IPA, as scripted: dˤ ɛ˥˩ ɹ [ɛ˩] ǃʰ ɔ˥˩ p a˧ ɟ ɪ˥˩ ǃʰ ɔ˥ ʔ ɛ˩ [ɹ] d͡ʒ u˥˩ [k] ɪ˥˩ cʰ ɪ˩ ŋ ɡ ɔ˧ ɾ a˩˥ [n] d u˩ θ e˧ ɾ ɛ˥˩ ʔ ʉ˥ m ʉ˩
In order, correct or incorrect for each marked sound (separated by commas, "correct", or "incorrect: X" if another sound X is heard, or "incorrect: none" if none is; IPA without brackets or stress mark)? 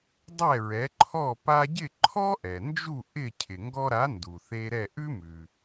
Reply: incorrect: ɛ˩˥, incorrect: n, incorrect: ʔ, correct